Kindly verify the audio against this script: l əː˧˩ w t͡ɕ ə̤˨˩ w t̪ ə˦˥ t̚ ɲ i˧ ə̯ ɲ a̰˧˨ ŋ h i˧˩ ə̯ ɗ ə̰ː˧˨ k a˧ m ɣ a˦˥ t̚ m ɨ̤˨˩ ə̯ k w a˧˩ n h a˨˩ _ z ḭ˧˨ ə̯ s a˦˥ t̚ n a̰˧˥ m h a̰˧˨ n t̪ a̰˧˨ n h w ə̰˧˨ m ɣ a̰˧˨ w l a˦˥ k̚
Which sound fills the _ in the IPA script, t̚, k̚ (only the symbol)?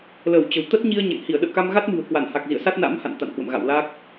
k̚